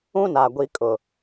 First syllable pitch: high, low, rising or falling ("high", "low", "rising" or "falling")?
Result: high